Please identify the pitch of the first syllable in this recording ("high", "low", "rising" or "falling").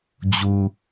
low